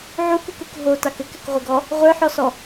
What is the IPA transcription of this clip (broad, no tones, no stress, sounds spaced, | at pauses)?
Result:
ʕ u k u k u k ɦ o t a k ɘ k ɘ k ʁʷ ɘ ɡ ɔ | ʁʷ ə˞ ħ ɔ s ɔ